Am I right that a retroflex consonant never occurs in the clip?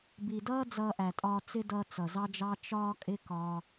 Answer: yes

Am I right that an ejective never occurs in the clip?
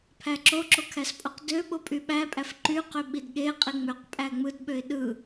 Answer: no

